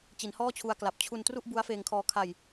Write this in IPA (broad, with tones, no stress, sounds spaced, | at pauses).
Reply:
t͡ɕ i˩˦ n h ɔː˥˩ t͡ɕʰ u˧ a̯ k l a˨˩ p̚ t͡ɕʰ u˧ n t r u˥˩ ʔ b u˦˥ a̯ f eː˧ ŋ kʰ ɔː˧ kʰ a˧ j